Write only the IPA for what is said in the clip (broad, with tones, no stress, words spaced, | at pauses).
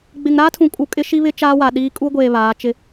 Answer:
ɡ͡bɪ˨ŋɾaː˦tʰũ˨kʼu˨ kʼɪ˦ʃi˦βɪ˦ t͡ʃaː˦wa˨ɗiː˦ kʼu˦ɡʷeː˨ βaː˨˦t͡ʃɪ˦